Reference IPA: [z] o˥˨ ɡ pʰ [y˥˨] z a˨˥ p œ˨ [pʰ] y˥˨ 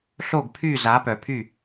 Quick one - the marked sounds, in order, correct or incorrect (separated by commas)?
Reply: incorrect, correct, correct